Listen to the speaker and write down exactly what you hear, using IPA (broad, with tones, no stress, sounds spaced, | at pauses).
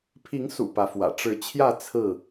pʰ i˨˦ ŋ s ṵ˨˩ p ä˨˦ f w ä̰˨˩ ʈ͡ʂ ɻ̩˨˦ t͡ɕʰ j ä˥˨ t͡sʰ ɹ̩˥˨